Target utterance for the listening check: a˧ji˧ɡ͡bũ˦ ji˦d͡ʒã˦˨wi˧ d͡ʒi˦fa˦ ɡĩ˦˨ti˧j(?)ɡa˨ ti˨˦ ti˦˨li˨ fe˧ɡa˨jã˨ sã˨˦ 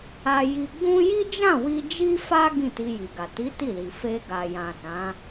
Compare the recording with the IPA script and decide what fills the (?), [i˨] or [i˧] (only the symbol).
i˨